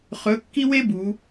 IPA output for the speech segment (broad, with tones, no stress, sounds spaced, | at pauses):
χ ɵ˧˥ kː i˥ w e˥ b u˩˧